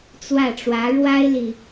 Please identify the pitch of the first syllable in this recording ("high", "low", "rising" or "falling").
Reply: falling